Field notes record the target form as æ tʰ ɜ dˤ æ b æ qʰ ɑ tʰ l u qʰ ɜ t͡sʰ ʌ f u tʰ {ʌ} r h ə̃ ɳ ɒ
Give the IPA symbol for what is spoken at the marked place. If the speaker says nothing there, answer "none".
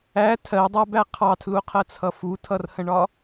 ʌ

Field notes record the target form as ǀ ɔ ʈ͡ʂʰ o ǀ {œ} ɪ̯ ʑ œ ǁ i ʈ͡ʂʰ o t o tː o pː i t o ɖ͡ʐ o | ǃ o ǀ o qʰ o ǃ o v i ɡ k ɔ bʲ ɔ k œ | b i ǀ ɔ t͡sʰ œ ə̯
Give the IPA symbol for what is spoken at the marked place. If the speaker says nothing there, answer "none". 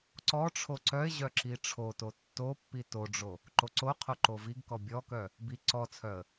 œ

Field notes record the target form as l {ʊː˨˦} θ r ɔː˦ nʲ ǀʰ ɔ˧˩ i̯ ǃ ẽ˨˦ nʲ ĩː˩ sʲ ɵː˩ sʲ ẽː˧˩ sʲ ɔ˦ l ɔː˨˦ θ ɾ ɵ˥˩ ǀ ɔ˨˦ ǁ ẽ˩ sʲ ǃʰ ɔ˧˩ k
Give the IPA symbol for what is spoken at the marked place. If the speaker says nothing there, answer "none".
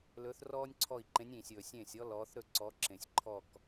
ɵː˨˦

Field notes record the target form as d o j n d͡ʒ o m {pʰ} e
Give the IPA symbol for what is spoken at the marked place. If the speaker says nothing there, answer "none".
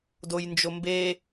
b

